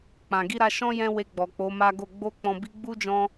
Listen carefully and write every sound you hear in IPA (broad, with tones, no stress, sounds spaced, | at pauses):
k͡p ã˨ ɡ i˧ ɾ a˧ ʃ ɔ̃˦ j ɛ̃˧ w e˧ ɡ͡b ɔ˨ k͡p o˨˦ m a˦ ɡ o˦˨ ɡ͡b o˧ k͡p ɔ̃˨ b i˧ ɡ͡b u˦ d͡ʒ ɔ̃˧